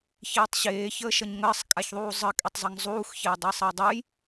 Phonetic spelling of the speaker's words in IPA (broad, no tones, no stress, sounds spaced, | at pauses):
ç eː tˤ ɕ eː ç əː ʃ ʌ ɲ ŋ əː sˤ kʼ a ç ðˤ uː zˤ ə kʼ e tˤ zˤ ʌ ŋ zˤ uː x ç eː dˤ eː sˤ ʌ j dˤ u j